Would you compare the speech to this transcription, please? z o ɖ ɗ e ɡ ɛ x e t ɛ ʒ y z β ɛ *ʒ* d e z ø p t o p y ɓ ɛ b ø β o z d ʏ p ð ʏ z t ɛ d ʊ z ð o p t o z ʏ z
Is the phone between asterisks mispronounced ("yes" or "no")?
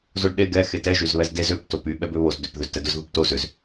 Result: yes